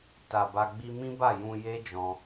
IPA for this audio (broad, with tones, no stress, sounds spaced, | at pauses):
t a˨ b a˧ ɡ͡b i˧ m ĩ˦ b a˦˨ j ũ˧ j e˦ d͡ʒ ɔ̃˧